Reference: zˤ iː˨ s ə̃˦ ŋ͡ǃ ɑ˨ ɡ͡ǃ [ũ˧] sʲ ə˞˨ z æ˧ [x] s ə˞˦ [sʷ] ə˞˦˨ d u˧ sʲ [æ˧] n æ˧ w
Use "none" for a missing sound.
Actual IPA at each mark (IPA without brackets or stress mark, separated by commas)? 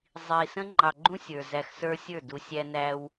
ũ˦, x, sʲ, æ˧